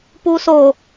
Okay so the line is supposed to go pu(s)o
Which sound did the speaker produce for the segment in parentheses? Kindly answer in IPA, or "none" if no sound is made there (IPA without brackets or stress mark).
s